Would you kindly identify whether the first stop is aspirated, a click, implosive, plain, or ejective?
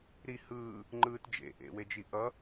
click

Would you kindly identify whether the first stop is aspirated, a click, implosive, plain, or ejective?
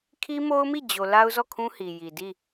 aspirated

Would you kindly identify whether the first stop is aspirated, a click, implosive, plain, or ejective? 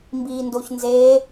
plain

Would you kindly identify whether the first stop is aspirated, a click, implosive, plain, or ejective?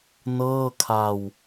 aspirated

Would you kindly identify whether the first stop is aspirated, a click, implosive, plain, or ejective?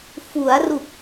plain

